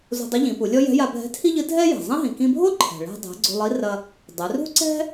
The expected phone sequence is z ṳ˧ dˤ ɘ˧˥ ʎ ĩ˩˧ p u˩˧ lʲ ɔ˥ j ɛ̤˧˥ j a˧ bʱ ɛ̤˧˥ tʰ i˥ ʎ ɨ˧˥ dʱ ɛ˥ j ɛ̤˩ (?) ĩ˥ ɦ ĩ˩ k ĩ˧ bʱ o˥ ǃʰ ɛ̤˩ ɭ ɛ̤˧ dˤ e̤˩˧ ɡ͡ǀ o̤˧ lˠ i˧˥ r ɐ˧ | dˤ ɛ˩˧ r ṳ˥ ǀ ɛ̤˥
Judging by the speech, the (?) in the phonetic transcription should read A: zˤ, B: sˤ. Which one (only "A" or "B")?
A